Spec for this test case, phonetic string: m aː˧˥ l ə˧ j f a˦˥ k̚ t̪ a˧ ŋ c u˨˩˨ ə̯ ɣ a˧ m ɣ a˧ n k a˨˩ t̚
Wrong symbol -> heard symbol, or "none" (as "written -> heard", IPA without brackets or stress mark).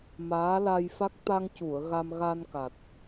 ə˧ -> a˧